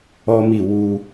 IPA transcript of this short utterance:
ɔ˦ m i˦˨ w u˧

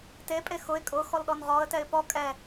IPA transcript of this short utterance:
t e pʼ e x ʊ ɪ̯ kʼ ʊ x ɔ l ɗ ɔ n ʁ ɔ ə̯ t ɛ ɪ̯ p ɔ kʼ ɛ

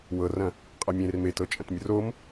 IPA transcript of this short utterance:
w ɤ r ɐ̃ | qʼ a mʲ ẽ r m e t ɤ t͡ʃʼ ɐ̃ t mʲ ɐ r o m

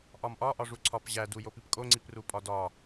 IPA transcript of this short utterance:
ʔ ɒ m ʔ ɒ ʔ ɒ ʐ u ǀʰ ɒ p ʑ æ d u j o p i p kʼ o ŋ͡ǀ i p r u pʼ ɒ d ɒ

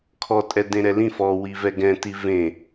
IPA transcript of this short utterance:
kʰ ɔ tʼ ɛ d ẽ ɾ ɛ l ĩ f ɔ w i v ɛ ɡ ɛ̃ t i v ẽ

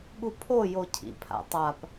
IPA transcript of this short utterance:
ɠ u pʰ o j o cʰ ḭ pʰ a̰ tˤ a p

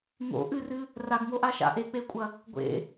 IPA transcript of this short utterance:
ŋ o̰ ʔ ɨ r ɨ | r a ɡ ŋ o ʔ a ʃ a̰ ʔ e k͡p e kʷʼ ɐ | ɡʷ ḛ

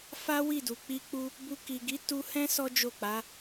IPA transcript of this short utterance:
f a˦ w i˦˨ d u˨ k͡p i˧ k͡p u˧ | b u˧ k i˨ ɡ i˨˦ t u˧ h ɛ̃˦ s ɔ˦ d͡ʒ o˦˨ k͡p a˨˦

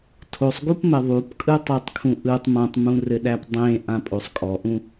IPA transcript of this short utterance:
tʰ o sˤ ɡ u p m ɘ ðˤ u p kʼ ɯ tˤ ɯ tˤ kʰ ũ ʔ ɯ tˤ m ã tˤ m ũ r ɘ ɗ æ p dˤ ẽ ʔ ã pʼ o sˤ kʼ ɔ ʔ ũ

